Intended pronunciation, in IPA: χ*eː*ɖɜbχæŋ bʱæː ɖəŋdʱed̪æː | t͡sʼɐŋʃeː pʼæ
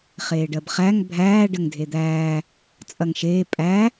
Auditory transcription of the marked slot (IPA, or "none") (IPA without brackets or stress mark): eː